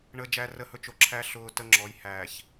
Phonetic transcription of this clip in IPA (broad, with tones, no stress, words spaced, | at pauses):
ɳə˨ d͡ʒæ˨rə˨hɵ˨ t͡ʃo˨ ǁʰæ˦ ɬʊː˨ tə˦ŋ͡ǁɔ˨˦j hæː˨ç